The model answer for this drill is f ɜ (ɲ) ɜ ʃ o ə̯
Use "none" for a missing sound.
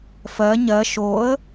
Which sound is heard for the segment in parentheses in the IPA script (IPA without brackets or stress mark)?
ɲ